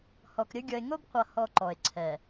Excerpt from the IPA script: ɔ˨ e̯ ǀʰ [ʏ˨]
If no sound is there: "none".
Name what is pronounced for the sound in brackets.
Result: ɛ˨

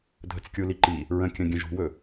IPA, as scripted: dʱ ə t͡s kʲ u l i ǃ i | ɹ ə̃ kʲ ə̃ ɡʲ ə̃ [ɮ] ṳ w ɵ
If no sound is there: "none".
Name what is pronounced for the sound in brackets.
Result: ʒ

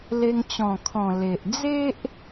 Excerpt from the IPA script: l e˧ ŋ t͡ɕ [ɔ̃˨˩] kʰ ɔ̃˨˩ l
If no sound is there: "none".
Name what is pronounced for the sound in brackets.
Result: ɔ̃˨˩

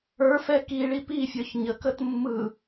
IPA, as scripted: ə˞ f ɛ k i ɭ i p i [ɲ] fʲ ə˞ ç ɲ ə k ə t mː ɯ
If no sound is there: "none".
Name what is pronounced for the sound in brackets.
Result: none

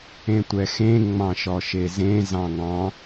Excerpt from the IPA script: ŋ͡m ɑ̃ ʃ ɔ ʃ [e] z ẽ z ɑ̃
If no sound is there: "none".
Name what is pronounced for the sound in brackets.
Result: e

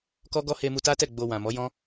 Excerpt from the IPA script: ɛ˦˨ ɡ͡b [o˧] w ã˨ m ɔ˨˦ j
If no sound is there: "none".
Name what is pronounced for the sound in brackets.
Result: o˧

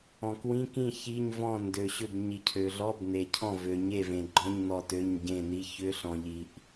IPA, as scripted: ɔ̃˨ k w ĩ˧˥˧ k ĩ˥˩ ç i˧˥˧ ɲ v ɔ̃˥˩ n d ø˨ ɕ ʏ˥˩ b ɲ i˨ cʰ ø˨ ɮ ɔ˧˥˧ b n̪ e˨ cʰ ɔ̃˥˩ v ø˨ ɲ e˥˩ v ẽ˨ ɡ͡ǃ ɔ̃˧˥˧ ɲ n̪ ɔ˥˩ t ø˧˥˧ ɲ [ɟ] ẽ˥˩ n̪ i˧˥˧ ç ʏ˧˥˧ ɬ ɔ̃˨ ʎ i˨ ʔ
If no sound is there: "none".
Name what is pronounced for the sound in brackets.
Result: ɟ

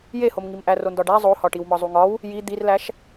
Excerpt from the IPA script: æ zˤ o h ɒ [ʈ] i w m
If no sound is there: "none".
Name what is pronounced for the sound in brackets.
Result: ʈ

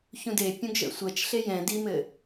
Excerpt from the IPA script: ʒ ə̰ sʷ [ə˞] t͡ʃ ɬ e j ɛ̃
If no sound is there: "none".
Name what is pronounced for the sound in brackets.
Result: ɜ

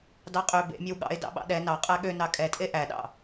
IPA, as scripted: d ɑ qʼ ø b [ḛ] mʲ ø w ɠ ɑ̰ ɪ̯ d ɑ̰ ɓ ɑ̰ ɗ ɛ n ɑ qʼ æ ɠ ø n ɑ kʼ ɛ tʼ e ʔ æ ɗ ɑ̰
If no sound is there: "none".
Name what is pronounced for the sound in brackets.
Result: ḛ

